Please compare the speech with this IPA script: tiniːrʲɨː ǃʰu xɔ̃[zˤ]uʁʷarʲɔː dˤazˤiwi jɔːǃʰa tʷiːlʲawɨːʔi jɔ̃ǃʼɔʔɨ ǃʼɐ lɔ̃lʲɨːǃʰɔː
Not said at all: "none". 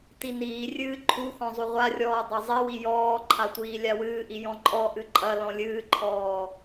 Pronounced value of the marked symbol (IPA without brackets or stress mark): zˤ